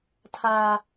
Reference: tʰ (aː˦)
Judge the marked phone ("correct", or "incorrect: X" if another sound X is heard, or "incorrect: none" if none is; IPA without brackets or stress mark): correct